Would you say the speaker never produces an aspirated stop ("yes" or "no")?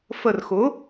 yes